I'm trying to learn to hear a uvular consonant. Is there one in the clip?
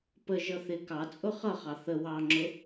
yes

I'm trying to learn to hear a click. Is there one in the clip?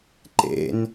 yes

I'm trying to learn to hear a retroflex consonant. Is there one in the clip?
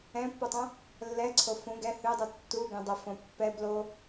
no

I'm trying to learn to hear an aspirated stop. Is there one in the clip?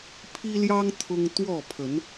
yes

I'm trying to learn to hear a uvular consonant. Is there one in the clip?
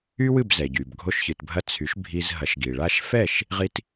yes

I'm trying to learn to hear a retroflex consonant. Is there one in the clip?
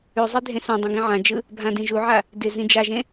no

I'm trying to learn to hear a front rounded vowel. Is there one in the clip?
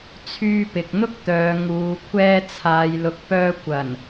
yes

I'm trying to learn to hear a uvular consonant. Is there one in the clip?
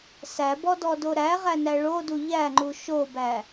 yes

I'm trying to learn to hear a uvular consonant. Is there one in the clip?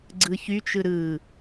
no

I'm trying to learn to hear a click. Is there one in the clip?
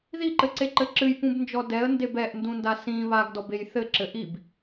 yes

